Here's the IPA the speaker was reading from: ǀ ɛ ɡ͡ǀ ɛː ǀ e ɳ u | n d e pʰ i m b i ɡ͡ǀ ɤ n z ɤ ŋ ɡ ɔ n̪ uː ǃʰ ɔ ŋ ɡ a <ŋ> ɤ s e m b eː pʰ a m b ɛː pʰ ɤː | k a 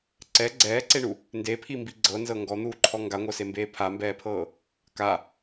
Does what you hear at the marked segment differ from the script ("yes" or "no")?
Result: yes